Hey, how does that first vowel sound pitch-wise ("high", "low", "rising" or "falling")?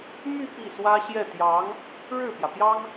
falling